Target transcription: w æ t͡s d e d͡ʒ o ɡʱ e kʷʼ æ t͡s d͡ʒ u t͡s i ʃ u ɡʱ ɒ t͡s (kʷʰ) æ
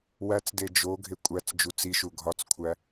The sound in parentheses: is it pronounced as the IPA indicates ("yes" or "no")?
yes